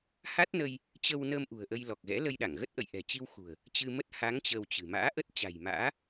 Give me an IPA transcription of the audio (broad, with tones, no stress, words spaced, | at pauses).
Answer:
ha˦˥t̚nə˧j | t͡ɕə˧wnəː˧m ʔṳ˨˩ə̯ʔə˧jlɔ˨˩k̚ɣɛ̰˧˥ lə˧jɗa˧˩ŋɣə˦˥t̚ ʔə̰˧˨jʔɛ̤˨˩t͡ɕi˧w xṳ˨˩ə̯ | t͡ɕɨ˧mə˦˥t̚ ha˨˦ŋ t͡ɕəː˧wt͡ɕɨ̤˨˩ ma̰ː˧˥ʔə˦˥t̚t͡ɕa̤˨˩jma̰ː˧˥